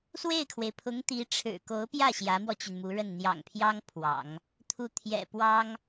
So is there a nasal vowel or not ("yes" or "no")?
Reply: no